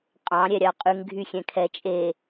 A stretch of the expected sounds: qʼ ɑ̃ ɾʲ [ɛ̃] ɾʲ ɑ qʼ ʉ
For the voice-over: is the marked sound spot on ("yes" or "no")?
no